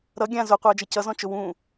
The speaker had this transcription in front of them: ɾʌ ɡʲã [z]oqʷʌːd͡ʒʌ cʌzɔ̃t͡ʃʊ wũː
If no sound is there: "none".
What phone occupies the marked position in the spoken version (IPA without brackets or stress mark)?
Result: z